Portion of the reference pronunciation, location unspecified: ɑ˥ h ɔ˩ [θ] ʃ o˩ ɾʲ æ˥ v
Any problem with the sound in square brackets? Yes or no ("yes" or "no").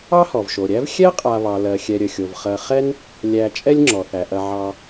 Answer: yes